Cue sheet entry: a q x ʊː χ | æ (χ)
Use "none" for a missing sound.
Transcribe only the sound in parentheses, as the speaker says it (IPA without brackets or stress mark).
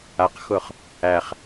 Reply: χ